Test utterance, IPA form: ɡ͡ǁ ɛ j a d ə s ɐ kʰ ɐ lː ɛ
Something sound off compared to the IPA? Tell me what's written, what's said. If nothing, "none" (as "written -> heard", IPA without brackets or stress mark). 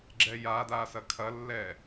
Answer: ə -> a